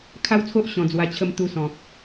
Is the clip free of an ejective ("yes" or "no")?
yes